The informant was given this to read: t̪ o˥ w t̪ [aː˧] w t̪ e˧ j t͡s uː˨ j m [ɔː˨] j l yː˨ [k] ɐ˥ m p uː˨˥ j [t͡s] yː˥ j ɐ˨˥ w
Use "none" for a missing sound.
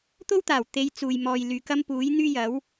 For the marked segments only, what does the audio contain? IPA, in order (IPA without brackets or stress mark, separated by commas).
aː˨˩, ɔː˨, k, n̪